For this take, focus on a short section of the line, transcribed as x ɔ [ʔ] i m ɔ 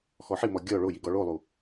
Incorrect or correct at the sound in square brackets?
incorrect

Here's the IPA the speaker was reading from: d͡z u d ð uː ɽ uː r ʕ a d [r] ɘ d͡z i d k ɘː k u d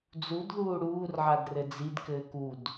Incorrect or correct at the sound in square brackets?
correct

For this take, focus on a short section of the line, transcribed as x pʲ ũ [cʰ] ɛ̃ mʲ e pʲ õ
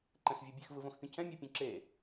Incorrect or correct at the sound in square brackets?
correct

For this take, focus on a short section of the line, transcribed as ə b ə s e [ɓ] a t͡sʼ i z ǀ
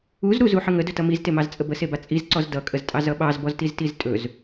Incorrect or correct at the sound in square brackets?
incorrect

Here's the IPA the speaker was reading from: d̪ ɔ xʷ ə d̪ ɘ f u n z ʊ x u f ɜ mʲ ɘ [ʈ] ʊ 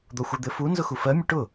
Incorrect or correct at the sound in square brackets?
correct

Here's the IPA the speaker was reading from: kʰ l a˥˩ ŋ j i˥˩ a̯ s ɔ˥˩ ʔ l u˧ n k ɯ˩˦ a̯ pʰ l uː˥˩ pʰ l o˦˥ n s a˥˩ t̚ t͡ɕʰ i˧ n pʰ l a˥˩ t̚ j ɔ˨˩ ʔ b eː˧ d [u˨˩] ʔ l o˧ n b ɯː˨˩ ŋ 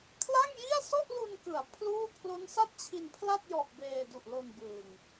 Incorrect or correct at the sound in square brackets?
correct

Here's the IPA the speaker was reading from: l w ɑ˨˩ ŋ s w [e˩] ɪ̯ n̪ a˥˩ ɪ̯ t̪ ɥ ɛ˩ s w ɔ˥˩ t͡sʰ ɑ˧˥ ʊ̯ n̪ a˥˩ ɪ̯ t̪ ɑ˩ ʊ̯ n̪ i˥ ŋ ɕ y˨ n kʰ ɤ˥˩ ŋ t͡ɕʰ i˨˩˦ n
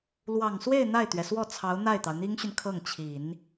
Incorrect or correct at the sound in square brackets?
incorrect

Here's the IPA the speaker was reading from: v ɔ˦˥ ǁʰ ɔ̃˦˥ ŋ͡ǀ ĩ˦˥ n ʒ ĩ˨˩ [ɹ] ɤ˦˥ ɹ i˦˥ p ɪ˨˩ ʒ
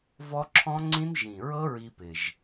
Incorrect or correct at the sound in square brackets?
correct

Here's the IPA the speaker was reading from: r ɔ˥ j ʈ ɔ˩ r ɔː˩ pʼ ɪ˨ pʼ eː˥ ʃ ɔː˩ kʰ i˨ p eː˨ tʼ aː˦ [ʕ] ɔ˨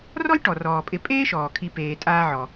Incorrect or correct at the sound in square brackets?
correct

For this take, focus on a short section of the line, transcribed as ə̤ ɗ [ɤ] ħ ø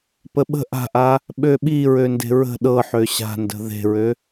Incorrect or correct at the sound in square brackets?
correct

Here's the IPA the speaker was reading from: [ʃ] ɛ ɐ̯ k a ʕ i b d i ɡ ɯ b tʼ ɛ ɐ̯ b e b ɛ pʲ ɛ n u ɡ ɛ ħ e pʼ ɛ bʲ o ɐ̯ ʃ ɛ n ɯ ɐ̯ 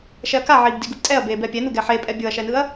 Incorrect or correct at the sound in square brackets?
correct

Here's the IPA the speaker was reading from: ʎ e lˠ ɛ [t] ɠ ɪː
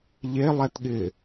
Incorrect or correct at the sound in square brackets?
correct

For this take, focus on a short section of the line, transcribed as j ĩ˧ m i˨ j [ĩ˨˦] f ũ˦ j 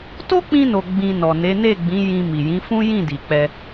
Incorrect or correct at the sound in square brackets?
correct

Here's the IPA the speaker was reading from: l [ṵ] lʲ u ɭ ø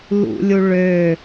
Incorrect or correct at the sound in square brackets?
correct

